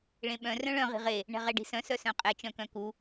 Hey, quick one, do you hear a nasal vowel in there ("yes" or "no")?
yes